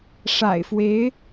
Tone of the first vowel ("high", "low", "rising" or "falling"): low